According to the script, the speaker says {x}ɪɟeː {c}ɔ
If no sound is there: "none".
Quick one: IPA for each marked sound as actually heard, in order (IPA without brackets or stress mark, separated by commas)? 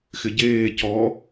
x, c